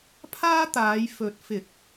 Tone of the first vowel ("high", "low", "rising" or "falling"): high